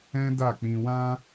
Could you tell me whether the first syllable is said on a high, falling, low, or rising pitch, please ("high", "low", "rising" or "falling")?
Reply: high